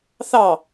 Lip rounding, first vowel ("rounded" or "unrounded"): unrounded